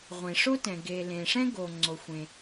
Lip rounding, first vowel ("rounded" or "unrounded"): unrounded